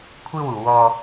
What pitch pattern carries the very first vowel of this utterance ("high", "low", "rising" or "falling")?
high